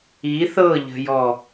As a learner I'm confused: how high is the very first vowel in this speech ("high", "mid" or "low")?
high